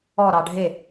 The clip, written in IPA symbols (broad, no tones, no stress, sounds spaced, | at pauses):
ɔ ɾ ɑ ɖʱ e